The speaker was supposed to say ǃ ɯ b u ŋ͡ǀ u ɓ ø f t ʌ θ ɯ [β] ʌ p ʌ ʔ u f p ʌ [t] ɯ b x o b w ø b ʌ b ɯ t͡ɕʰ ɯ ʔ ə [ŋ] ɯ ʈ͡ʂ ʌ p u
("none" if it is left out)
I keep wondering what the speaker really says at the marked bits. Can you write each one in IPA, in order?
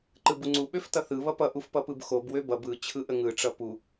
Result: β, p, ŋ

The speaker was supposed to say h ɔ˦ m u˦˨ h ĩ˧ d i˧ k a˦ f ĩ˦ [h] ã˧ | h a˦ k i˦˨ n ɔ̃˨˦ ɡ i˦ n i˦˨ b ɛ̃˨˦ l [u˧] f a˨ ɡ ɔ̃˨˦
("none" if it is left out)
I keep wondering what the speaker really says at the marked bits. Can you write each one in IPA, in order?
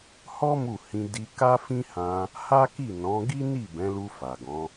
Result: h, u˧

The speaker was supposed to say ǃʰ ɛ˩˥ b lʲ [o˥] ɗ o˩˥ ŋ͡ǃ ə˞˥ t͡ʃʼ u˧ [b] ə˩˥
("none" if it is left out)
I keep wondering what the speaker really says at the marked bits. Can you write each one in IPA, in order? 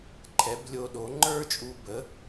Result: o˧, b

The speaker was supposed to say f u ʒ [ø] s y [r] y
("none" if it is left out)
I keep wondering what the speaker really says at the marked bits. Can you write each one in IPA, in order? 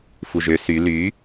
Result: ø, l

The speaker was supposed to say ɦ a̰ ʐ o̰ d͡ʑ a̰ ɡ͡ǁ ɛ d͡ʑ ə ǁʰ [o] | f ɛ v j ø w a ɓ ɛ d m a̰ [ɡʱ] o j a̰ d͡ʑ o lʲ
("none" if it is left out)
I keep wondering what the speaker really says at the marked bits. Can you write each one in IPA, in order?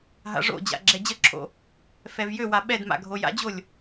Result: o̰, ɡʱ

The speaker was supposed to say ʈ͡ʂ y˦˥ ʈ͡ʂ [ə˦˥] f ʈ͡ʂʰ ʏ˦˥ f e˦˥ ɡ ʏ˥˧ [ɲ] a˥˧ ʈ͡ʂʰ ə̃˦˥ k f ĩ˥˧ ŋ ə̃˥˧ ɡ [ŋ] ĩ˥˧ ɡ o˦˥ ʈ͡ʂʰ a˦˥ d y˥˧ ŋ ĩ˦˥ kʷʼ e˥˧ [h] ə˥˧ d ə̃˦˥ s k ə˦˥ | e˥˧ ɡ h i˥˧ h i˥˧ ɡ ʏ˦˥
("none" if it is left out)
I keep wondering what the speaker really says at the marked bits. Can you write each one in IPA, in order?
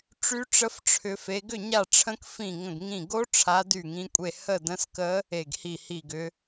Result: ə˦˥, ɲ, ŋ, h

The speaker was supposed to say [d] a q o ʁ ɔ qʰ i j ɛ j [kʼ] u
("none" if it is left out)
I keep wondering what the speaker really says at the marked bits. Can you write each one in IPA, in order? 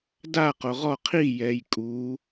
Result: d, kʼ

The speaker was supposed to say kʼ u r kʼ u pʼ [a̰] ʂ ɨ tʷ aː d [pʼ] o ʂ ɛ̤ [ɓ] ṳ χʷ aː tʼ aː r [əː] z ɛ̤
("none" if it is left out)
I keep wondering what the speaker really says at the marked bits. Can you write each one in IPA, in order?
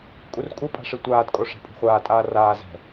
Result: a̤, kʼ, pʼ, aː

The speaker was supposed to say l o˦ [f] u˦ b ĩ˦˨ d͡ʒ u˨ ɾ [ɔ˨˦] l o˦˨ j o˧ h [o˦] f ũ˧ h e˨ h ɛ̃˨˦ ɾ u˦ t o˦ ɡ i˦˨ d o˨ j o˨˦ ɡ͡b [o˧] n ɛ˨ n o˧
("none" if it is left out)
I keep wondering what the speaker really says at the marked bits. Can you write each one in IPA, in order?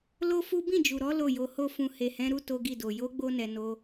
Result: f, ɔ˨˦, o˦, o˧

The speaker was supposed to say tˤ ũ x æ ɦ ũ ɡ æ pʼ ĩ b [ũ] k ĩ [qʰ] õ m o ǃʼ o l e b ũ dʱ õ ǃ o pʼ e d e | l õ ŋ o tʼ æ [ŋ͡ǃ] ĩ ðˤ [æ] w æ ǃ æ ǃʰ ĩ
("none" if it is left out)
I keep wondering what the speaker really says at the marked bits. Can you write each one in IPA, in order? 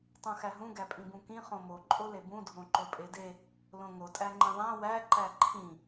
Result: ũ, χ, ŋ͡ǃ, æ̃

